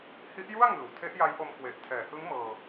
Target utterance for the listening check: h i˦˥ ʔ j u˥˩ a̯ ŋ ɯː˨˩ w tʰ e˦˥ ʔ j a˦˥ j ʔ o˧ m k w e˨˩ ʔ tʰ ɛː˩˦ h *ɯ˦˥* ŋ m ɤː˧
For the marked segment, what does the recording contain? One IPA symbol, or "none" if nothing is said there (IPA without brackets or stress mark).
ɯ˦˥